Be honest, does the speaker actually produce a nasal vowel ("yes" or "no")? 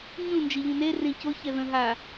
yes